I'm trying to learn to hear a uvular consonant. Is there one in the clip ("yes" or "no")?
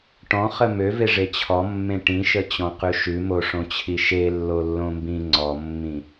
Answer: yes